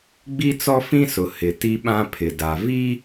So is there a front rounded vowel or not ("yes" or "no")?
no